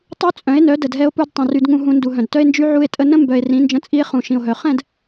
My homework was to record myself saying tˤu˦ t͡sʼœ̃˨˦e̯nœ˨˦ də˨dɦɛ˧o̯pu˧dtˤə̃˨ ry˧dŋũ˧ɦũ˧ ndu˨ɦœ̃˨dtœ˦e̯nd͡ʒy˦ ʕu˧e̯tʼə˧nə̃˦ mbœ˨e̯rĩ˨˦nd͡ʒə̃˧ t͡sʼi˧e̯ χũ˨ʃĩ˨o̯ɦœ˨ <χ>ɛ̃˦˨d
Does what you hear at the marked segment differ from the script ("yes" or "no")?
no